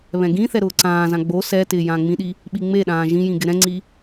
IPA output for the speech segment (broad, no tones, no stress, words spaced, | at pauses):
βɛ̃ɡĩθɛ ɾʊːǀãːzã ɡ͡bo sɛtɪː jãːŋ͡mĩɗi | ɓiŋ͡meɗãː ʒĩjĩ ɡɪɾɛ̃ŋ͡ǀi